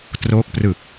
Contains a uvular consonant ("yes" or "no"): no